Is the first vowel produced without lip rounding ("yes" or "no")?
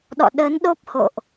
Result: no